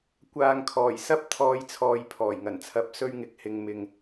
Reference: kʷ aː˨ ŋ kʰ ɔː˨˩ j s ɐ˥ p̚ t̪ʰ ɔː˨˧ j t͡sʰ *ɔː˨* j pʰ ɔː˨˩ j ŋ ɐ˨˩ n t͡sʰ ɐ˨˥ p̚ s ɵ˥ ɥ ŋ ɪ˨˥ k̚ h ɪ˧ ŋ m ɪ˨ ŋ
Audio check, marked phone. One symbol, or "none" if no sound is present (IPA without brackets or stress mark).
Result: ɔː˨